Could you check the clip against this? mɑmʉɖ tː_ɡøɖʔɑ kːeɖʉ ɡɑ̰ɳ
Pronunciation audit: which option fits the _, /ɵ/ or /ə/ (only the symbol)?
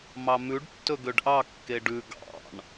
ɵ